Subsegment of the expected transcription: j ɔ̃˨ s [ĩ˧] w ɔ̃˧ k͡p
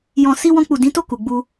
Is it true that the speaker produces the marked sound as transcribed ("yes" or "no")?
no